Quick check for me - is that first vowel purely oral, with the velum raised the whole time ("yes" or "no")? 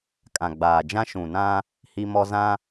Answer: no